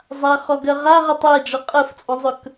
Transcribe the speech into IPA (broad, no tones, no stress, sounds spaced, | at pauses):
zˤ a χ ɔ ɡ ɜ ʁ a ʁ ɛ tˤ ɜ d͡ʒ ɔ qʼ ɜ f t͡sʼ ɔ̃ zˤ ɵ k